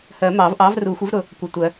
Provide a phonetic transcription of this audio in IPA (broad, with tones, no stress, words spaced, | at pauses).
hɜ˨˩˦mɑ˨˩˦vʔɑ˨˥v ru˨˩˦xʷɪ˨˥vɾʊ˨ | kʷʌ˨tʷɜ˨˩˦